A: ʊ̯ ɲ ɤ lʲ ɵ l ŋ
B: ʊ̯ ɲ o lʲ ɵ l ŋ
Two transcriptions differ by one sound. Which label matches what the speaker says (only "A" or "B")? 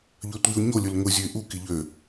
B